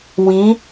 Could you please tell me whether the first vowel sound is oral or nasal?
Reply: nasal